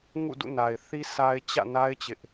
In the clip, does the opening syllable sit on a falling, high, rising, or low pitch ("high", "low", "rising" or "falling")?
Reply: falling